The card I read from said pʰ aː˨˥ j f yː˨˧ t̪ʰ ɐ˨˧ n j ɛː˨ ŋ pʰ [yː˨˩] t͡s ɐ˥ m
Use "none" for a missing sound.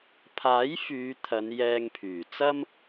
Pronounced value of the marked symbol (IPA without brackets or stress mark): yː˨˩